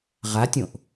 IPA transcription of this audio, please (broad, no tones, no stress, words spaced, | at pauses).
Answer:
ʁatʲõʔ